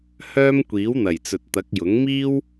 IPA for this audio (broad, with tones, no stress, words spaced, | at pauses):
hœː˥mkʷiː˨˥wn̪ɐ˨˩j t͡sɵ˨t̚t̪ɐ˨˥k̚jʊ˨˥ŋ miː˥w